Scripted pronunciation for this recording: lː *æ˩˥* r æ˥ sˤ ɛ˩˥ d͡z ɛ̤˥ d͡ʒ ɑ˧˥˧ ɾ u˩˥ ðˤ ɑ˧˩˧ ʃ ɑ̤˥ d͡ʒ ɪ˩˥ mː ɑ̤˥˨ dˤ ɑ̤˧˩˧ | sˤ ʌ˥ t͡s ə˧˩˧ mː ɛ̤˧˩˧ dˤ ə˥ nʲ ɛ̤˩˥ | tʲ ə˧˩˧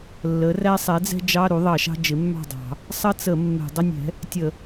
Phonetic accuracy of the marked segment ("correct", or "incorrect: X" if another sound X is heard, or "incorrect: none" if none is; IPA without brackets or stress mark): incorrect: ə˩˥